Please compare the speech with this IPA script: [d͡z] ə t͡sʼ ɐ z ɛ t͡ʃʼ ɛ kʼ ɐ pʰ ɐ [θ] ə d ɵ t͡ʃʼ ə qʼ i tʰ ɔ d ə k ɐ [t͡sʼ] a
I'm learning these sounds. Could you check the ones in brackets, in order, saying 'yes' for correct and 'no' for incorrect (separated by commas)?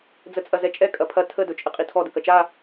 yes, no, no